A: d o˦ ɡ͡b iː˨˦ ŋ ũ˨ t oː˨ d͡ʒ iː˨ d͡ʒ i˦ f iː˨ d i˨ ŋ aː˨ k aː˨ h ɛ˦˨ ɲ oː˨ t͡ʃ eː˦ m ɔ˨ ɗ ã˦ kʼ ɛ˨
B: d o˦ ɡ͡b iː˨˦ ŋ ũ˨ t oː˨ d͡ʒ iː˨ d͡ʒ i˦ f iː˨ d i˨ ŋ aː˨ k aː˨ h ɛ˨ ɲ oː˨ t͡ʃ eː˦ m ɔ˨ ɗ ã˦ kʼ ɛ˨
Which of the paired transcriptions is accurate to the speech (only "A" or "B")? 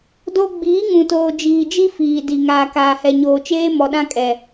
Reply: B